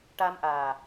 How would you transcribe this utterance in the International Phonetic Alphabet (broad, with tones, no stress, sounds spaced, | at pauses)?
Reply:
ʈ a˧ m ʔ aː˨˩